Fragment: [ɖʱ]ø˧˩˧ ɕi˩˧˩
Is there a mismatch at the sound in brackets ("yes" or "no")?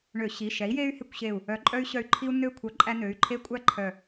yes